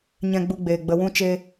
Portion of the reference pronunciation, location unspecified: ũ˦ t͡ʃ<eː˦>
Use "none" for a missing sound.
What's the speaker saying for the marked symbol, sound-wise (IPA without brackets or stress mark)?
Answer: eː˦